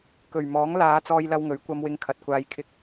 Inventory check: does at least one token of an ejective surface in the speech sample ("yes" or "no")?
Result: no